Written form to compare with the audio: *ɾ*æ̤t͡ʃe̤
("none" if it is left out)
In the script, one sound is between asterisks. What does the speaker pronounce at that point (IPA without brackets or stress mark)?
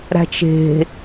ɾ